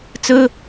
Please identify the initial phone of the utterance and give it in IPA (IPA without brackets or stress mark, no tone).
t͡s